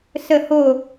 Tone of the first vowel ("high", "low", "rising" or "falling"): falling